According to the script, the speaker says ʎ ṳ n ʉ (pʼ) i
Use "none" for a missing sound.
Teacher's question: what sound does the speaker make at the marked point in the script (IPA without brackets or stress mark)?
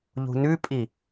pʼ